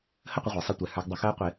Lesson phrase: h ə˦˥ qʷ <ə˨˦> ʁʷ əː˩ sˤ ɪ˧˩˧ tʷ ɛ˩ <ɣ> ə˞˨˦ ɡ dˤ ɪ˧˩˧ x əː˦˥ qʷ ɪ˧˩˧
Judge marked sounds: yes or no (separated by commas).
yes, no